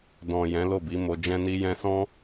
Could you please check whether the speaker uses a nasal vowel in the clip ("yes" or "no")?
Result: yes